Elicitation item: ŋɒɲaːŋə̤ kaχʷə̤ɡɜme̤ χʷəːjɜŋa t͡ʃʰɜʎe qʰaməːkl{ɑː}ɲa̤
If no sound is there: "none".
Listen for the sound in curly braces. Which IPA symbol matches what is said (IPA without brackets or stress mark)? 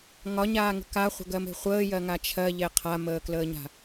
əː